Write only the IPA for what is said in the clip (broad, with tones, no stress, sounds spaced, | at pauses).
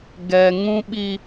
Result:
ɡ ɛ˨ ŋ ũ˦ ɓ i˦